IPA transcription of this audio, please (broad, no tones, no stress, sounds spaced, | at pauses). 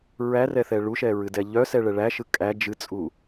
ɹ æ r ɛ θ ɛ ɭ u ʃ ɛ ɹ ɨ d ɛ ʎ œ s ɛ ɭ ɛ ɭ æ ʃ ɯ kʼ æ d͡ʒ ɨ t͡sʼ u